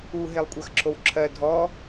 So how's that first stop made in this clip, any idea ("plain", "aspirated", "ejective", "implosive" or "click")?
ejective